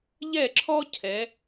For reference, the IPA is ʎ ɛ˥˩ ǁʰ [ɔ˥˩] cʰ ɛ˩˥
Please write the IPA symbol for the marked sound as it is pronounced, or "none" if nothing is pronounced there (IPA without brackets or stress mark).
ɔ˥